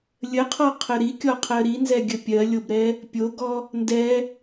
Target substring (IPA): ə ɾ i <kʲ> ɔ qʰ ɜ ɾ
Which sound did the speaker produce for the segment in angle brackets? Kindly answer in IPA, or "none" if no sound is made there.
kʲ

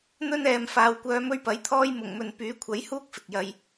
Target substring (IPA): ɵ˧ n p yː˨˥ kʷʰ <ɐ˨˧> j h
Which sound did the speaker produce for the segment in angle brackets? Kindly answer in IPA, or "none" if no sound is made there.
ɐ˨˥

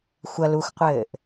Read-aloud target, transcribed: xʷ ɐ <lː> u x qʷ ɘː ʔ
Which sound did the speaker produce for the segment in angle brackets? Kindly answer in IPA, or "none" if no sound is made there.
l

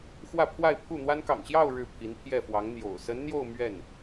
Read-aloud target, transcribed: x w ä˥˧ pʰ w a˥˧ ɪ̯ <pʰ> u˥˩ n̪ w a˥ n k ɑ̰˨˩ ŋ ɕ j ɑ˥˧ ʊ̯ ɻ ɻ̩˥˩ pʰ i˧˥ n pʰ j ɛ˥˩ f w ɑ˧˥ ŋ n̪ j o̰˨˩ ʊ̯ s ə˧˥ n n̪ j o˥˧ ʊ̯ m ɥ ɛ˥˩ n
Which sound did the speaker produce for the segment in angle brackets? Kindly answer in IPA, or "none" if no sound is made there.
pʰ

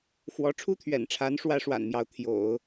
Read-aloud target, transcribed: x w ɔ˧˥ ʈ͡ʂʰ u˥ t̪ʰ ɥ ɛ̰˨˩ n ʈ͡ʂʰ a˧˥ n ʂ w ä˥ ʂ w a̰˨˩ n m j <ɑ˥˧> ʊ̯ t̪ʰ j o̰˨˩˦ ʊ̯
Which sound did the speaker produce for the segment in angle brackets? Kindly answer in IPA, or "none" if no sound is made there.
ɑ˧˥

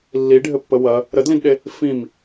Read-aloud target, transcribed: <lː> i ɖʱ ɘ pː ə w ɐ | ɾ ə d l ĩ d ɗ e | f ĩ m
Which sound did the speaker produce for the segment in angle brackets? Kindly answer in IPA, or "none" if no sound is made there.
lː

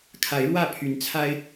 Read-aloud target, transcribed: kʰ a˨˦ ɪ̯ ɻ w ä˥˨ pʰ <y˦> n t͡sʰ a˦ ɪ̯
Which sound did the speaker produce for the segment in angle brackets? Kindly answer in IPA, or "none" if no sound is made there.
y˨˦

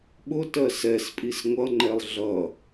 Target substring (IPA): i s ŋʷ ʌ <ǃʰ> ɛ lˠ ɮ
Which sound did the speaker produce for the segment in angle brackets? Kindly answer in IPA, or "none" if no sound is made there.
ŋ͡ǃ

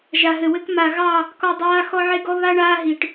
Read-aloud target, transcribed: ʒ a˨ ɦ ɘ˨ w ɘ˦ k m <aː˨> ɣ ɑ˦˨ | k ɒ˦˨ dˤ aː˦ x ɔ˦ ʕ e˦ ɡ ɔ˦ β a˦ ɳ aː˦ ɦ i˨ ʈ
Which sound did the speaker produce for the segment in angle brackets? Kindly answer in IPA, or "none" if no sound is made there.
a˨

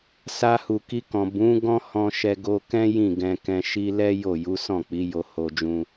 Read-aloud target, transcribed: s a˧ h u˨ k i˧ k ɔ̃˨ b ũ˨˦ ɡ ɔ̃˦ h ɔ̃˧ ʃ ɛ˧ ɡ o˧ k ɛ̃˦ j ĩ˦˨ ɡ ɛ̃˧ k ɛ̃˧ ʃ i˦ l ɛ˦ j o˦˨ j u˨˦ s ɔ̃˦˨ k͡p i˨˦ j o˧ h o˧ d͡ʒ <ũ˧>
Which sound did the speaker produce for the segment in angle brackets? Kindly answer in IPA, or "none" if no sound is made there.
ũ˧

